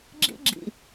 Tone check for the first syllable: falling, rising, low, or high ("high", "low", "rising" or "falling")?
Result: high